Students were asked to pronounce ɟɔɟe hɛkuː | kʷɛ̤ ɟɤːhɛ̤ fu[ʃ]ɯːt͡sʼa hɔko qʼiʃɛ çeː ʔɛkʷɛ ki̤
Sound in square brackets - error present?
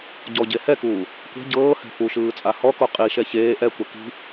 no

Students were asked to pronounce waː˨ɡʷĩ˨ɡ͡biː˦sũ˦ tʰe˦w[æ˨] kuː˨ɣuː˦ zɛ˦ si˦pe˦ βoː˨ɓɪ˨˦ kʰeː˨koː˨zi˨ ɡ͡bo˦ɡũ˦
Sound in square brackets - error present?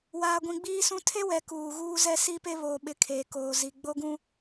yes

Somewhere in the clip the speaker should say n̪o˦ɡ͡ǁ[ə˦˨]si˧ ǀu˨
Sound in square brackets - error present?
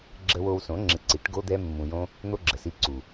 yes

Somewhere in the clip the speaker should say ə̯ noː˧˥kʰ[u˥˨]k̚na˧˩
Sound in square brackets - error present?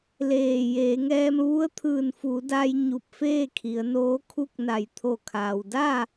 no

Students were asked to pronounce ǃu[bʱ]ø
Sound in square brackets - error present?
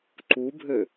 no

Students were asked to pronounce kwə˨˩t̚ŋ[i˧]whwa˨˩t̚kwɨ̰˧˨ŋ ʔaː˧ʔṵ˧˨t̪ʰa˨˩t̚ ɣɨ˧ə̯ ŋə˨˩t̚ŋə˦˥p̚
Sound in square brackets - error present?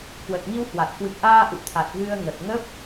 no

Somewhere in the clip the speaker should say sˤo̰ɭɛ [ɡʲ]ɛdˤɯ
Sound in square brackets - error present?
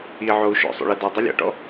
yes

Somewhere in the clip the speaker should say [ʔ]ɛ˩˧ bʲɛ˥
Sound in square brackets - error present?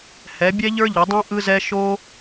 yes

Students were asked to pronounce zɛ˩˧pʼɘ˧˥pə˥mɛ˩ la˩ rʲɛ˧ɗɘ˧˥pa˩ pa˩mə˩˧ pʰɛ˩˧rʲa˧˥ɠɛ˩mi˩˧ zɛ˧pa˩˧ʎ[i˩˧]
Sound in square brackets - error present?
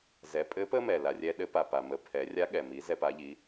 no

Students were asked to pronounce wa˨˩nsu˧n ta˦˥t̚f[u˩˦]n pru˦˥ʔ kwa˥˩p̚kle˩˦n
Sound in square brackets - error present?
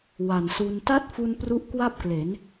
yes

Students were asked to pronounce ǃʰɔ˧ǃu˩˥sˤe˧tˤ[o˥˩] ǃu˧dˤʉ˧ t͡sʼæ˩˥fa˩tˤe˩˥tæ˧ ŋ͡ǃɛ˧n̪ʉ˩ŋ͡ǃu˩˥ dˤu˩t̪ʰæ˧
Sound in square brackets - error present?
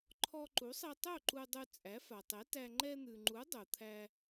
no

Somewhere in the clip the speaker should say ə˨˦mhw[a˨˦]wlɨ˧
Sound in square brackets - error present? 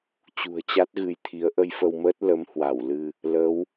yes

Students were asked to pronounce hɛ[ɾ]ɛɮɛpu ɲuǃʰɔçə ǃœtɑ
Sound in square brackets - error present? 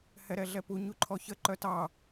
no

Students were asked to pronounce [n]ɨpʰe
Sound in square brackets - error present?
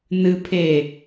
no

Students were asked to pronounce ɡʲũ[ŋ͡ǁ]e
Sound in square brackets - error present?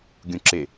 yes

